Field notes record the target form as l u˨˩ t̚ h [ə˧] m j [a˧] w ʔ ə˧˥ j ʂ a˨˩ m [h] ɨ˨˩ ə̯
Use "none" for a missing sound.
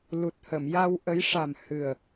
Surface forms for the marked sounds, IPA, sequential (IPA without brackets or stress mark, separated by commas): ə˨˩˨, a˧, h